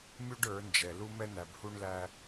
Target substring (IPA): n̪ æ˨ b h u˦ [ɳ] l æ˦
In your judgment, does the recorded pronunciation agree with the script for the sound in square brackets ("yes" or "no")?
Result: yes